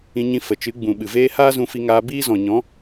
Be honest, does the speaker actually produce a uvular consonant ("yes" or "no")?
no